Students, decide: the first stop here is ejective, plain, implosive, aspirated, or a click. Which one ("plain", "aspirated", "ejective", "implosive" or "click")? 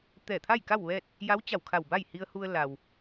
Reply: plain